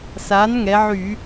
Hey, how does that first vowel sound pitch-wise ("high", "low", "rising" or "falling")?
rising